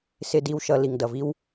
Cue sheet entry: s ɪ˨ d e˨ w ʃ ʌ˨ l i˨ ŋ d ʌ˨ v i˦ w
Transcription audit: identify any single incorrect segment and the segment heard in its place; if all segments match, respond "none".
e˨ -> i˨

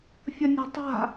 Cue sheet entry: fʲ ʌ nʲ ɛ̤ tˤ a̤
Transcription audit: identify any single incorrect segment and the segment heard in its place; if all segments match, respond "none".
none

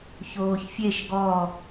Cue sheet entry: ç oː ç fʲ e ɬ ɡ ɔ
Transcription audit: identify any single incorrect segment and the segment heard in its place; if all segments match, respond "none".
ɬ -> ʃ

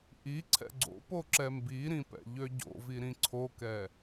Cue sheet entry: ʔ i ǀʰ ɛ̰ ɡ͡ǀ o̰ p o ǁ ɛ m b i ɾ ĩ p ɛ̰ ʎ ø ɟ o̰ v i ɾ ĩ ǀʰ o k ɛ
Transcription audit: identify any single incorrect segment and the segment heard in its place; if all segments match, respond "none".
none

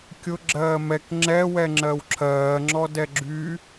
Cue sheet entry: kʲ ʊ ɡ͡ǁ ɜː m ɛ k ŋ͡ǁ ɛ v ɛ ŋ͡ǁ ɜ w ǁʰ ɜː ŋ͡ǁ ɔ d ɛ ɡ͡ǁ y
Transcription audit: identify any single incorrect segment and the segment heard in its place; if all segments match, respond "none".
v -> w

